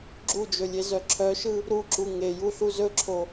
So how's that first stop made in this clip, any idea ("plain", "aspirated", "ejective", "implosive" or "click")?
click